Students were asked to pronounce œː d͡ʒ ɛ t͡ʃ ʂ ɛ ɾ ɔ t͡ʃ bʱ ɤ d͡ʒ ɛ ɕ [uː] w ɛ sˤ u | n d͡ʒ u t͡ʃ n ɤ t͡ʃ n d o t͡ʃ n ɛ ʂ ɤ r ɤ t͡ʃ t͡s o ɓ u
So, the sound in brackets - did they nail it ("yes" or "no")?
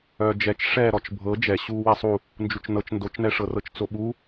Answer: yes